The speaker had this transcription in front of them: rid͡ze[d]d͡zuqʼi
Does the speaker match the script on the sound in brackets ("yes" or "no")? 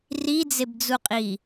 no